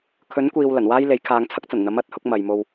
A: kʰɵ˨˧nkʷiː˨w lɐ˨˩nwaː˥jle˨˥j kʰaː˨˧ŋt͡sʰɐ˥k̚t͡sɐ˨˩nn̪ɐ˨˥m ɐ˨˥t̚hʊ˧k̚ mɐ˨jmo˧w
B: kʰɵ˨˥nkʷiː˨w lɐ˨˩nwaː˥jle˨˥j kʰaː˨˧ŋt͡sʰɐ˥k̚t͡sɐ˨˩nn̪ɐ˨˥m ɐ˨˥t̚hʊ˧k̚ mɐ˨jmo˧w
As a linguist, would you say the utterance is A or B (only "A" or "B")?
B